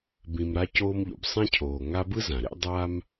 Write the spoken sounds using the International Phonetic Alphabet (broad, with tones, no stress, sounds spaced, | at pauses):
b ĩ˨ m ɾ a˦ c oː˦ m ʎ o̰˩ b sˤ ɛ̃˥ cʰ oː˨ ŋ a˦ b ɯ˥ z ã˩ ɾ ḛ˥ dˤ aː˥ m